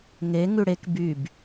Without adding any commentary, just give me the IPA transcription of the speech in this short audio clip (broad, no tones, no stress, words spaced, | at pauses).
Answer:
ŋe ŋʉɽek byb